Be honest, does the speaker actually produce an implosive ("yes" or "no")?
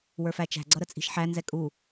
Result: no